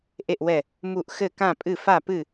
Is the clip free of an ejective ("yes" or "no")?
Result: no